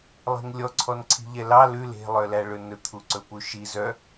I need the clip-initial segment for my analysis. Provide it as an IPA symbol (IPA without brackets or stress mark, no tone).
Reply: lˠ